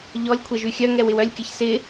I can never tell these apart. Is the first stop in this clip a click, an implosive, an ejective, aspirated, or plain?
aspirated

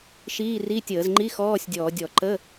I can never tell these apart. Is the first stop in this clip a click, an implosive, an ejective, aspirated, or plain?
plain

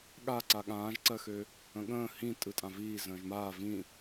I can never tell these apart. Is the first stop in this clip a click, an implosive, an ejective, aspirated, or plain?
implosive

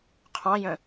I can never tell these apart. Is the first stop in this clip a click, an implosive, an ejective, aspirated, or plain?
aspirated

